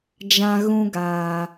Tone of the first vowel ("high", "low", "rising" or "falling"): high